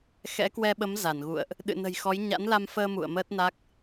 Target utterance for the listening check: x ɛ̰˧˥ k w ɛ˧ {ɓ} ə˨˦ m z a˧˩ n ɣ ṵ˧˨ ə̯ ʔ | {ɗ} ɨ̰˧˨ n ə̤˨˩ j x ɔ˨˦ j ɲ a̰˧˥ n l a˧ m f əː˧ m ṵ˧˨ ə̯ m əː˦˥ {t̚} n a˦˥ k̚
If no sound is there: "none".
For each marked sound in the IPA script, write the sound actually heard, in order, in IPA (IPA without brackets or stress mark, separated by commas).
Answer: ɓ, ɗ, t̚